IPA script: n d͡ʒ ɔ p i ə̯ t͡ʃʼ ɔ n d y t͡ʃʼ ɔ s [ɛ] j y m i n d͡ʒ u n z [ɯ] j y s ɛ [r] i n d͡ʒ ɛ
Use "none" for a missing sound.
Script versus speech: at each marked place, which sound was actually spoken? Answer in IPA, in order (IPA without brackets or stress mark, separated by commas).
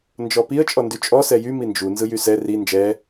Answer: ɛ, ɯ, r